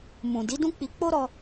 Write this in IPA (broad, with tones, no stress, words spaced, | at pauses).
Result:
mũ˨ di˨˦dũ˦k͡pi˧ k͡po˦ɾɔ˧